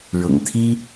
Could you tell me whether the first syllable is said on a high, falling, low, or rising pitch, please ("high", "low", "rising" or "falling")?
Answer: low